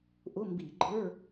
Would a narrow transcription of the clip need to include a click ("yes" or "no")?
yes